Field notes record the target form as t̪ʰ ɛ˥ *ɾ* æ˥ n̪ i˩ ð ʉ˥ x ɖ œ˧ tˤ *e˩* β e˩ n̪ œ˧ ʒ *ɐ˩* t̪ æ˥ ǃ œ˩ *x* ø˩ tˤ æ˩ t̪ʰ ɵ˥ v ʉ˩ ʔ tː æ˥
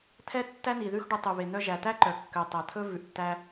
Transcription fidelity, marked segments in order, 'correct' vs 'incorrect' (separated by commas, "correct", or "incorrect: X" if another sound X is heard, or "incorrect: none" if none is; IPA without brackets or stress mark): incorrect: tː, incorrect: y˩, incorrect: æ˩, incorrect: kː